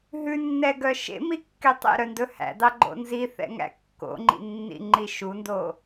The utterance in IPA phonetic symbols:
ɦ ʉ nː ɛ ɡ œ ʃ ḛ m i kː e tˤ ḛ ɾ œ n d ɵ h æ̰ d ɑ ɡ͡ǃ o̰ n z i θ ɛ̰ ŋ æ̰ kː o̰ ŋ͡ǃ ḭ nː ḭ ŋ͡ǃ i ʃ u n d o

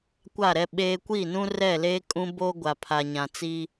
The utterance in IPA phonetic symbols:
kʷ a˦˨ ɾ ɛ˦ ɓ eː˦ kʷ iː˦˨ n ũ˦ r ɛ˦˨ l eː˦ kʼ ũ˦ b oː˦ ɡʷ a˨ pʰ a˨ ɲ ã˨ t͡s iː˦

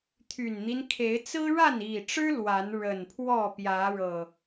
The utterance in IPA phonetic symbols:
t̪ʰ y˨˩ n n̪ i˦ n kʰ e˨˦ ɪ̯ t͡s ɹ̩˦ ɻ a˥˨ n i˨˩ ʈ͡ʂ ɻ̩˦ l w a˨˦ n ɻ ə˨˩ n pʰ w ɔ˥˨ p j ä˨˦ ɻ ɤ˨˩

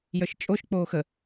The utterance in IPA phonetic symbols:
j œ ʃ t͡ʃʼ o ʃ k͡p oː x ə

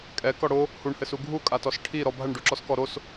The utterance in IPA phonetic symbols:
kʼ ɛ k ɔ ɽ o | h u ɳ h ɘ s u ɡʱ u kʼ a t ɔ s ʈʰ i ɾ ɔ bʱ ɐ ɳ ɖ u ǁ ɔ s k ɔ ɾ o s

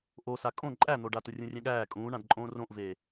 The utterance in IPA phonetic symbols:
ʔ o s a kʼ õ ǃʼ æ n̪ o ɖ a t ʊ rʲ ũ rʲ ɛ̃ ɠ æː kʼ ũː ɳ ã d ǃʼ õː r õ ʔ v eː

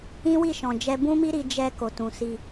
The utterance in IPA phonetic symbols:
ĩ˦ w i˦˨ ʃ ɔ̃˨ d͡ʒ ɛ˧ b ũ˦ m i˦ ɾ i˧ d͡ʒ ɛ˧ k o˨ t ũ˨ s i˧

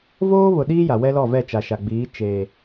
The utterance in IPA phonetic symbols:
v oː˦ β ʊ˨ ɗ iː˦ j a˨ w ɛ˦ l ɔ˦˨ v ɛ˦˨ t͡ʃ a˨ ʃ a˨ ɡ͡b iː˨˦ t͡ʃ eː˨

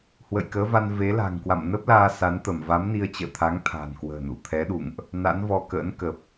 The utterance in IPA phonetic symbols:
h w ə̰˧˨ j k əː˨˦ v a˧ n v e˨˦ l a̤˨˩ ŋ k w a̰˧˨ m n ə˦˥ p̚ l aː˧ s a˨˦ n t̪ ə˧˩ m v a˨˦ m n i˧ ə̯ t͡ɕ ə̰ː˧˨ t̪ʰ a˨˦ ŋ t̪ʰ a̤˨˩ n k w ə̤ː˨˩ n ṵ˧˨ t̪ʰ ɛ˨˦ ɗ ṵ˧˨ ŋ ʔ | n a̰˧˥ n v ɔ˧ k ə̰ː˧˥ n k ə˨˩ p̚

